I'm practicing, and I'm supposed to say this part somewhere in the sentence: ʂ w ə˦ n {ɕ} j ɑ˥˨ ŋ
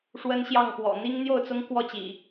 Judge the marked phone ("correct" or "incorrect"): correct